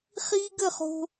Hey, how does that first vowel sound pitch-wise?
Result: high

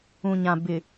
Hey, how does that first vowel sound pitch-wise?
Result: low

